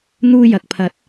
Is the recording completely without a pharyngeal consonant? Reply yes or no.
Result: yes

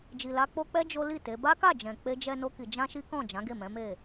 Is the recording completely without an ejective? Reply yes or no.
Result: yes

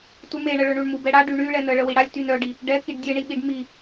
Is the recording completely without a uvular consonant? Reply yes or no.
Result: yes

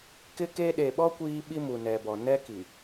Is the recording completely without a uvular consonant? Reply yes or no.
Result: yes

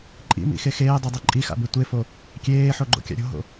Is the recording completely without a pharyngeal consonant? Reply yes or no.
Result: no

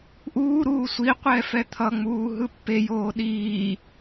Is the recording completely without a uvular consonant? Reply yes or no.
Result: no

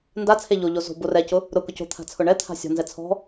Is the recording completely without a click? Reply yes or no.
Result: yes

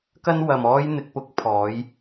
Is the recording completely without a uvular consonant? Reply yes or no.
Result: yes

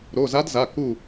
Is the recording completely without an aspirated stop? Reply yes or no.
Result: yes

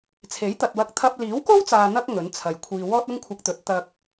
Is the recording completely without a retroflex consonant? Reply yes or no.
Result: yes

